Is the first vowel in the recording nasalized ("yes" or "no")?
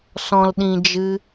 yes